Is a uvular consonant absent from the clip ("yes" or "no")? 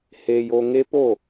yes